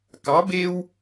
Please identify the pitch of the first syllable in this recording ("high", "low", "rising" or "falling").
rising